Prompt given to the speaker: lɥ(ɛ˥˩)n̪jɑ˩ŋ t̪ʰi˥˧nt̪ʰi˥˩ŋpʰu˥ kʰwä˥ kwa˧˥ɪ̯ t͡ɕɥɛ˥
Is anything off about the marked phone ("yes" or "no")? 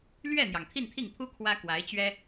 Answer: no